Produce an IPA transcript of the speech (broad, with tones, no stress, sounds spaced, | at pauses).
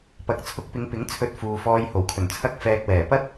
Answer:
p ɐ˨˥ k̚ t͡sʰ ʊ˧ k̚ p ɪ˨˧ ŋ p ɪ˨˥ ŋ t͡sʰ ɵ˧ t̚ f uː˨ f ɔː˧ j h o˨˩ w kʰ ɵ˨˩ n t͡sʰ ɐ˥ k̚ f ɛː˧ k̚ w ɛː˨˩ p ɐ˥ t̚